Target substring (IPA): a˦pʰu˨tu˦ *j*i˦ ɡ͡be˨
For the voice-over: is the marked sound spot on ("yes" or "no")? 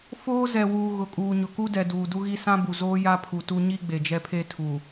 no